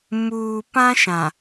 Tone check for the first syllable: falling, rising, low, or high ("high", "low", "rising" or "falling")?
low